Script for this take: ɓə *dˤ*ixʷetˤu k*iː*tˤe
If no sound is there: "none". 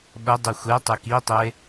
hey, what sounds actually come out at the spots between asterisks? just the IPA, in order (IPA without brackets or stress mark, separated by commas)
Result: dˤ, i